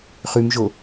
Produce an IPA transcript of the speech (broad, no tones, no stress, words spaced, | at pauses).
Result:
χʉmʒo